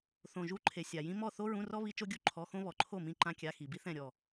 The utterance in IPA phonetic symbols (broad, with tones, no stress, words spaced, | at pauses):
θõ˨ʒu˧˥˧ǃʰe˨ sʲa˨jĩ˥ mɔ˥˨ θo˥ɹũ˧˥˧rɔ˥ βi˥ t͡ʃo˥ɡʲu˥ ǃʰɔ˧˥˧xõ˥ βɔ˨ǃʰo˥˨mĩ˧˥˧ ǃã˥kʲa˧˥˧ xi˨bi˥θɛ̃˥˨ ɾʲɔ˥˨